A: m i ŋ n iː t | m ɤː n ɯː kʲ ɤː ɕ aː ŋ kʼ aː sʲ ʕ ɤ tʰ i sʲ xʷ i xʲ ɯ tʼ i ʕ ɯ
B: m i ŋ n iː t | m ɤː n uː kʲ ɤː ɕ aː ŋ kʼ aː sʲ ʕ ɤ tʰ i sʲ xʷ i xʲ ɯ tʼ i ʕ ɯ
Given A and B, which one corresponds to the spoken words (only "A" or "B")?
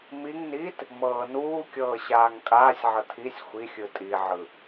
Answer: B